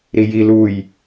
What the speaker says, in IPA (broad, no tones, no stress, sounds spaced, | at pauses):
ɾ i j i l u j